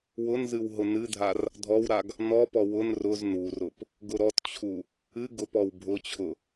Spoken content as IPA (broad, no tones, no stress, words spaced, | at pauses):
wʊnzɨw ɦʊnɨdʱar | dʱɔwɾaɡ | nɔpɔ wʊn rʊz nurʊp | ɡʊɾɔtt͡ɕʰu | ɨ ɡʊpɔw bʱʊt͡ɕʰʊ